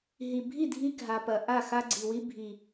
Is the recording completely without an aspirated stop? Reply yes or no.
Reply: yes